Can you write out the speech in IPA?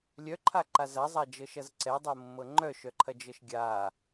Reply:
lʲ œ ǃʰ a ǃ a z ɐ zˤ a d͡ʒ ɤ ʃ ɐ z ǀ ɛ dˤ ɤ mː ɤ ŋ͡ǃ œ ʃ œ ǃʰ ɐ d͡ʒ ɤ ʃ ɡʲ a

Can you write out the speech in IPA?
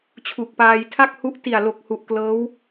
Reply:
t͡ɕʰ u˨˩ k̚ p aː˧ j tʰ a˥˩ k̚ h u˦˥ ʔ t i˨˩ a̯ l o˨˩ k̚ h u˨˩ ʔ k l ɤː˦˥ w

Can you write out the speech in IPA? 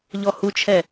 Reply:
ʎ ɔ h u t͡ʃʰ ɛ

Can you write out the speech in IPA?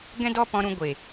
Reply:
ɡ ɛ̃˦ d ɔ˦ p ɔ̃˧ ɾ ũ˧ ɡʷ e˨

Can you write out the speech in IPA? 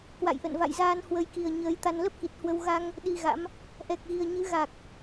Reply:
k w a̰˧˨ j ʔ ə̰˧˨ n v a̰˧˨ j z aː˧ n h w ə˧ j k i˨˩ ə̯ ɲ əː˨˦ j t̪ a˧ n l ə˦˥ p̚ k i˨˩ t̚ h w ə˧ w ɣ a˧ ŋ | ɗ i˧ ɣ a̰˧˥ m | ʔ ɛ˨˩ k̚ ɣ i˨˩ ə̯ ɲ ɨ˨˦ ɣ a˨˩ k̚

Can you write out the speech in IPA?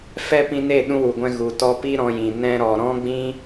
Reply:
f ɛ˦ p ĩ˧ n e˦˨ ɗ ũ˧ w u˨ ɡʷ ɛ̃˧ ɣ u˨ t ɔ˧ p i˦ ɾ ɔ̃˧ j ĩ˨ n ɛ̃˦ ɾ ɔ˧ ɾ ɔ̃˦ ɡ͡b ĩ˦

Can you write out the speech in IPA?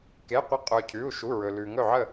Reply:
k e˧˥˧ qʷ ə˥˩ qʼ ɵ˧ cʰ ʉ˧˥˧ u̯ ʃ u˧˥˧ ɹ ɵ˧ l ʉ˧ ŋ ɵ˥˧ ʕ ə˥˧

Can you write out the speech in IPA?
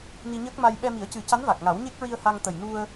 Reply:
n i˧ ɲ əː˦˥ k̚ m a˧ j ɓ ɛ˧ m i˨˩˦ ə̯ c ɨ˨˩˦ c a˧˥ n v a˨˩ k̚ ŋ a˨˩˦ w ɲ e˦˥ k̚ ɹ i˧ ə̯ h a˧ ŋ t̪ ə˨˩ j n u˧ ə̯

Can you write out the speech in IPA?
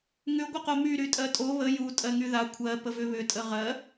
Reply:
ŋ ʏ ɡʷ ə q o m y ɾ y tʼ ɜ tʼ o β ə j u tʼ ɜ ŋ y ð a kʷʰ ɜ p ə v ʏ β ʏ tʼ ə ʁ ɜ

